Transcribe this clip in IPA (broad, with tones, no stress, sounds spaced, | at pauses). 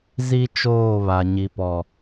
z i˦ t͡ʃ oː˦˨ β a˨ ɲ i˨ p ɔ˨